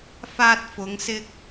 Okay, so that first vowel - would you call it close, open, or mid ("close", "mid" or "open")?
open